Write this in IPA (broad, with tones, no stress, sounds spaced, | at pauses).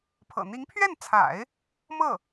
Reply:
pʰ ɤ̰˨˩ n̪ i˧˥ ŋ pʰ ɥ ɛ˥˩ n t͡sʰ a̰˨˩˦ ɪ̯ | m ɤ˥˩